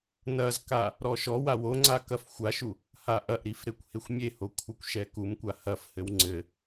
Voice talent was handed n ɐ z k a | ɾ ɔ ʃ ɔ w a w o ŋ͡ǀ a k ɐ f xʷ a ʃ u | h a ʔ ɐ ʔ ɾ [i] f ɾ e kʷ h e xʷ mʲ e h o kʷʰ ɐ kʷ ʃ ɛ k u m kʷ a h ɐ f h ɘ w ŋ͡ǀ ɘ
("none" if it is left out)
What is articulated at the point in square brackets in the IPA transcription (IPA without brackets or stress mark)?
i